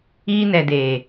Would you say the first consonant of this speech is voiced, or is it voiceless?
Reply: voiced